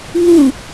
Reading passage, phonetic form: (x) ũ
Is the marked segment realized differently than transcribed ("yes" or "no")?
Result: yes